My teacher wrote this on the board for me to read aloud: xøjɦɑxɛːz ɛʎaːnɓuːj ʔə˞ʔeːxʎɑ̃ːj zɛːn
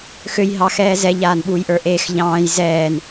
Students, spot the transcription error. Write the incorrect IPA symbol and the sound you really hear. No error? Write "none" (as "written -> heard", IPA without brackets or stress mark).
none